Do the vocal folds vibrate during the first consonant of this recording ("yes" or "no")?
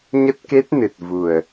yes